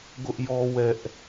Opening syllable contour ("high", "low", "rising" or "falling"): high